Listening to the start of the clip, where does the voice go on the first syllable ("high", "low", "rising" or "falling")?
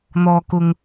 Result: low